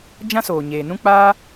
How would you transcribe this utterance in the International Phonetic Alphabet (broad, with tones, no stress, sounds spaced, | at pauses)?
d͡ʒ ã˦ s oː˨ ɲ eː˨ n ũ˦ k͡p aː˦